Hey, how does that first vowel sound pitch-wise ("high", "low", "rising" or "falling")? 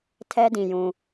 high